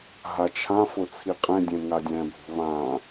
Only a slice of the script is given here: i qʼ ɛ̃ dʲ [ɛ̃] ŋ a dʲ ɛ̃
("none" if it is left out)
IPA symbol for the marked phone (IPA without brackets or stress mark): ɛ̃